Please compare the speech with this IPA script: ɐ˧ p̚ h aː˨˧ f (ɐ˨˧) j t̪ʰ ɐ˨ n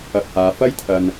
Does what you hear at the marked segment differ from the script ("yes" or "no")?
yes